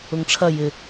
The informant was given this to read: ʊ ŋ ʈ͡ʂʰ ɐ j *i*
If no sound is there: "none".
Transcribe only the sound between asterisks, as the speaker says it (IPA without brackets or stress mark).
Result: ɪ